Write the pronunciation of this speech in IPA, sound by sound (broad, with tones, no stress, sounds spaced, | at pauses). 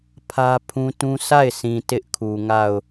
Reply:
pʰ ä˦ pʰ ũ˦ t ũ˦ s a˦˨ ɪ̯ sʰ ĩ˨ t ɪ˦ ʔ kʰ u˨ ŋ a˦˨ ʊ̯